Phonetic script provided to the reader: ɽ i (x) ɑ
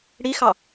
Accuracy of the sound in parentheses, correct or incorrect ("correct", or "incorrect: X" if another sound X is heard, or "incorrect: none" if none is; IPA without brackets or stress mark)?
correct